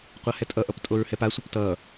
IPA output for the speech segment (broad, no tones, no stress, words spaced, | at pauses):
qʷahɛtʼʌʔʌp tʼoɹhɛpasʷʌp tʌ